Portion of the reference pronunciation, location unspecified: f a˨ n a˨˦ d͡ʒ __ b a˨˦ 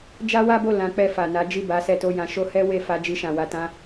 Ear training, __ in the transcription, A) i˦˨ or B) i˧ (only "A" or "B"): A